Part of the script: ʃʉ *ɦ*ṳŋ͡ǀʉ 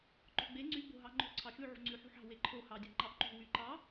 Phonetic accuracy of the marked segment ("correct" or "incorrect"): incorrect